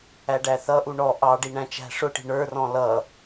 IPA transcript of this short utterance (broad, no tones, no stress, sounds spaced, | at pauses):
æ ɖ æ θ ʌ ʔ u ɳ ɔ ʔ ɑ ɖ i ɳ æ̃ t͡ʃ æ̤ ʂ ʊ ʈ i̤ ɳ ə˞ r ɔ̃ l ʌ